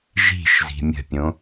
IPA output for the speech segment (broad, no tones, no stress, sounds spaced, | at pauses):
ʒ i̤ ʃ z i̤ mʲ ə̤ pʲ õ